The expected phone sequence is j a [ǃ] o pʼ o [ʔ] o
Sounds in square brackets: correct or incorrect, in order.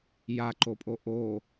correct, correct

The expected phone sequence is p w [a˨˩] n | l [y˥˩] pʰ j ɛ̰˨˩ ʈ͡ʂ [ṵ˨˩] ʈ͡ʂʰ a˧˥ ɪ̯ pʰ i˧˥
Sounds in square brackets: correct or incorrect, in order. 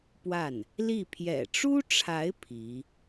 incorrect: a˥˩, incorrect: i˥˩, incorrect: u˥

